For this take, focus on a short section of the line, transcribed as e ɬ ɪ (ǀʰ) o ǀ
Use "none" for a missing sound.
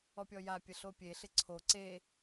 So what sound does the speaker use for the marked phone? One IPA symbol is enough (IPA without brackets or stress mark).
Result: ǀʰ